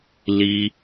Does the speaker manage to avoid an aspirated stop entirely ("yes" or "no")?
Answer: yes